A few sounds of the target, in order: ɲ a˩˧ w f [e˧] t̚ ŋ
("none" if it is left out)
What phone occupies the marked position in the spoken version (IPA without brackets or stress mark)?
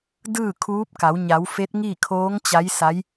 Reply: e˧˥